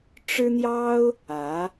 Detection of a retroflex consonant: present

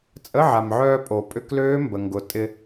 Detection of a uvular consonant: absent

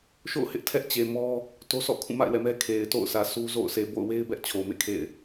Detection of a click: absent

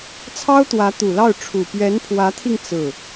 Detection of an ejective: absent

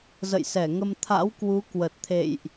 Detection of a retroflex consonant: absent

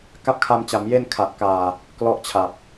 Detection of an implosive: absent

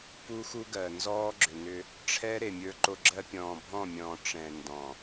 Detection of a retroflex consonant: present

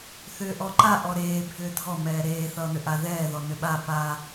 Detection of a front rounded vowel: present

